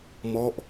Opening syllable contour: falling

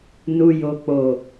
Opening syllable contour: low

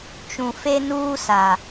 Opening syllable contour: low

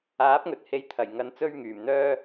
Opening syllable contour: rising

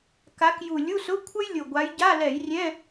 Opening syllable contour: rising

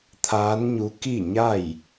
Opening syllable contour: rising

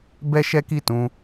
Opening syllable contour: high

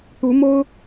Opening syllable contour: rising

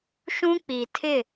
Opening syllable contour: high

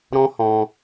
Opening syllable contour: high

